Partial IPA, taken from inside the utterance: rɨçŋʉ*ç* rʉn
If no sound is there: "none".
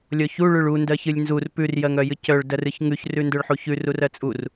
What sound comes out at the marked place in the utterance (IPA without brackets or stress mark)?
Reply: ç